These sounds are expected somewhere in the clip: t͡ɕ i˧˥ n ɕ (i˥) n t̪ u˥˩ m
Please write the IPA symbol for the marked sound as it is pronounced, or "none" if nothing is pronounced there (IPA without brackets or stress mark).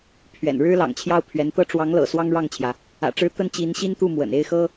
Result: i˥